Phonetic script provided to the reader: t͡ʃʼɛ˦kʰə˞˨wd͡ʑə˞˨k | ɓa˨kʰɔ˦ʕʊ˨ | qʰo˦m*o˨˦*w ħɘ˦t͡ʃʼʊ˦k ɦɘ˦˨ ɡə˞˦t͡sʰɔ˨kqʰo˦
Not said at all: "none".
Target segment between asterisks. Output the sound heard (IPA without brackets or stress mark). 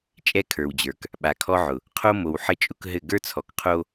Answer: o˨